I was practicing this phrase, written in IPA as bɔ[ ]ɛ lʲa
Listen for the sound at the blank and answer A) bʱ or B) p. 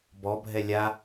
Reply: A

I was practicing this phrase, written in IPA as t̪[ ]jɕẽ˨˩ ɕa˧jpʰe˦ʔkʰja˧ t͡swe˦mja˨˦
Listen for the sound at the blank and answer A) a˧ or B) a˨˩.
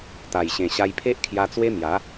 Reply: B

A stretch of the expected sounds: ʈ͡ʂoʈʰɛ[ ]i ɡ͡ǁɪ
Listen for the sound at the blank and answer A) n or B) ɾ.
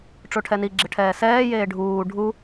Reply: A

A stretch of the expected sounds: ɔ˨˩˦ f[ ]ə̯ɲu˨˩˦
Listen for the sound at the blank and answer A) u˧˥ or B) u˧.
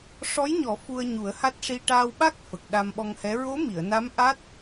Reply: B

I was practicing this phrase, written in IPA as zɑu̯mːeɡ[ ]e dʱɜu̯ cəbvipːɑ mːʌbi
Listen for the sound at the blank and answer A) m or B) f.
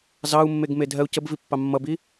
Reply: A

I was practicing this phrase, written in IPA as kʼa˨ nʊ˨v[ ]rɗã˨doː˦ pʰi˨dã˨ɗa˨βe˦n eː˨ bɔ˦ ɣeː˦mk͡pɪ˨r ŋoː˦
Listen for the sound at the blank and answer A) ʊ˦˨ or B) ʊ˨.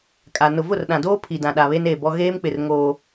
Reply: A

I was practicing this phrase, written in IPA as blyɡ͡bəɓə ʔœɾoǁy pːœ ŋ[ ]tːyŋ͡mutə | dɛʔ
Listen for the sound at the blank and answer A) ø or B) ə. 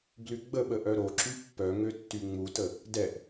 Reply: A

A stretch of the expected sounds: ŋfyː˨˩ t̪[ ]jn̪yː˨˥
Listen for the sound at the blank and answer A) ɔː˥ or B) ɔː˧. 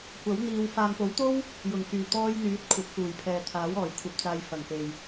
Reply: B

